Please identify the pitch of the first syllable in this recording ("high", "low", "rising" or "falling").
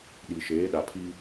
low